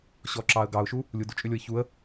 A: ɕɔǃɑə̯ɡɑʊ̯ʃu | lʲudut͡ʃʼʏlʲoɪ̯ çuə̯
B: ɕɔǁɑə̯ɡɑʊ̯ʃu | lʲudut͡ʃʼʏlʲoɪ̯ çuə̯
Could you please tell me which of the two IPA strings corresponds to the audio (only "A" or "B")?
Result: B